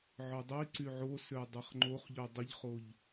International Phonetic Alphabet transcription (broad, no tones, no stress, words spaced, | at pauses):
ʕœdˤiǀy ʕosø dˤɛχŋ͡ǃoχʎœ dˤɪʎχoʎ